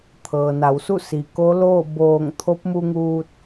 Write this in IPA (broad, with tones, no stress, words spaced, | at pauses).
t̪ʰɤː˩na˩˧wsu˥˨ si˩ko˧˥loː˥˨ boː˧˩ŋ t̪ʰo˧˥p̚mu˧ŋuː˧t̚